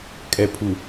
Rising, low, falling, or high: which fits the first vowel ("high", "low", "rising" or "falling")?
low